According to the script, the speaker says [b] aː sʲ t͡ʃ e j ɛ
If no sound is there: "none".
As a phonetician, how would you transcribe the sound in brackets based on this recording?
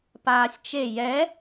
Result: p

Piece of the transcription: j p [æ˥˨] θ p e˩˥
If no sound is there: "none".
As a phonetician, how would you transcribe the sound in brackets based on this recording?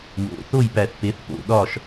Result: æ˨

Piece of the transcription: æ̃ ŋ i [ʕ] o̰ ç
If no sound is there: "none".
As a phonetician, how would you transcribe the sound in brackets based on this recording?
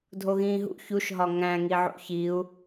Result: ʕ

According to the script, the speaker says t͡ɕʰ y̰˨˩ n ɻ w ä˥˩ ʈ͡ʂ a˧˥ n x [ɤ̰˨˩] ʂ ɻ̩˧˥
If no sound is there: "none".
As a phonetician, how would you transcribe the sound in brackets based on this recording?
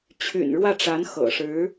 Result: ɤ̰˨˩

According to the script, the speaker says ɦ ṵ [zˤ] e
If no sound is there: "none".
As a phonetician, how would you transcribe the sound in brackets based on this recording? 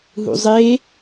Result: zˤ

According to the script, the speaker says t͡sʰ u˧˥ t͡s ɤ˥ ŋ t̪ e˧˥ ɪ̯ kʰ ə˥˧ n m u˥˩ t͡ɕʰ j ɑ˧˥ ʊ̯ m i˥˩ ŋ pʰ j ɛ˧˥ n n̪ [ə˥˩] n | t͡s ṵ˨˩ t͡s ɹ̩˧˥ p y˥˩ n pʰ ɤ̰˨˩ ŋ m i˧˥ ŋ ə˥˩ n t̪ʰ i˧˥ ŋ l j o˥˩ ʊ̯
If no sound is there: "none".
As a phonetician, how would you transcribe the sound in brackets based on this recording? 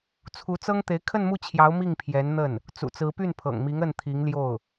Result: ə˥˩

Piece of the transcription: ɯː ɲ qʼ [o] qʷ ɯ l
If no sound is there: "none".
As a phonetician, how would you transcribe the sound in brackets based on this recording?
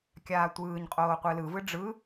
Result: oː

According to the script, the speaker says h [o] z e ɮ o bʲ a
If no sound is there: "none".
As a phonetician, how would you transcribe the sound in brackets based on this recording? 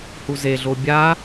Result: u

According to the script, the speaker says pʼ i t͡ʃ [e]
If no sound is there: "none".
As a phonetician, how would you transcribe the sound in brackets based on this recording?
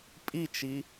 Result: i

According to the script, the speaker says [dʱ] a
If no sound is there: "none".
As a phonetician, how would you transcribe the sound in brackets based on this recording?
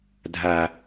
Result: dʱ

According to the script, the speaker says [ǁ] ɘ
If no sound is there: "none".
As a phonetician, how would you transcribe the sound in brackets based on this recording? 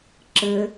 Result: ǁ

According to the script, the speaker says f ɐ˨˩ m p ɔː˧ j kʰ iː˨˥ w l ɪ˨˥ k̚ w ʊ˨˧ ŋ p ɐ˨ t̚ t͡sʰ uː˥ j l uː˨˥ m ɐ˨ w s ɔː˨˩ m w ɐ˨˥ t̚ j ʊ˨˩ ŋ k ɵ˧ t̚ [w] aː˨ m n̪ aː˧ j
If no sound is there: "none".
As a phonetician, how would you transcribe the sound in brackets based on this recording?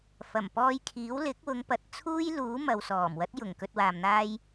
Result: w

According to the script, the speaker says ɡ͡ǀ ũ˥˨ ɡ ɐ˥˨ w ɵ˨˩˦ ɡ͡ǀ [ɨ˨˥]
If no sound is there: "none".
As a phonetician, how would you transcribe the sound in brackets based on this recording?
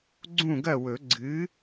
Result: ɨ˨˥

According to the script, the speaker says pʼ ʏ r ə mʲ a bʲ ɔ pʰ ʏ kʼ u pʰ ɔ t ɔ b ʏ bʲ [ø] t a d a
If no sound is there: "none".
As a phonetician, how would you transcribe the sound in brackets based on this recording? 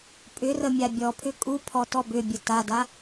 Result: ə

